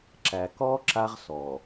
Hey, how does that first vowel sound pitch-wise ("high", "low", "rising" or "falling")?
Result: low